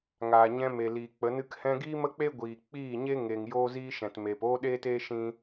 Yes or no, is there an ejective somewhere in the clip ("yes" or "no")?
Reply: no